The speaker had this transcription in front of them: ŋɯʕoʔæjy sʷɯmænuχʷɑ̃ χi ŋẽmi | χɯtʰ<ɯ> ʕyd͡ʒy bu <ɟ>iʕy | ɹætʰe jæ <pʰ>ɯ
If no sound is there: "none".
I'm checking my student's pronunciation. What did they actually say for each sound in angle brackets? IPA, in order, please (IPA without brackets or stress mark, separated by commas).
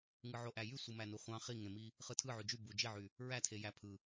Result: ɯ, d͡ʒ, pʰ